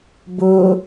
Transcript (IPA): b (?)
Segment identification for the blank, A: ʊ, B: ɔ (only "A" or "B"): A